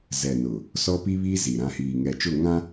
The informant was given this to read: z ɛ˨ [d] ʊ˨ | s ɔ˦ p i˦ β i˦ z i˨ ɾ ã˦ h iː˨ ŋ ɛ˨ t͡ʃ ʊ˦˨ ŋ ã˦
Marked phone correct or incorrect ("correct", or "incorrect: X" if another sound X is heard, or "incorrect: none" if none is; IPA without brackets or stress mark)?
incorrect: n